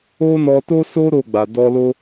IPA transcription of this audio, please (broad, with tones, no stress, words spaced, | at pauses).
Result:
o˦nɔ˧ to˦so˦ ɾo˦˨ɡ͡ba˨ dɔ˧lo˦